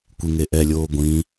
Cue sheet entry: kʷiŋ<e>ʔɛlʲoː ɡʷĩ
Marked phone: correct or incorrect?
correct